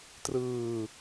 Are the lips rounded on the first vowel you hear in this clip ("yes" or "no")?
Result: no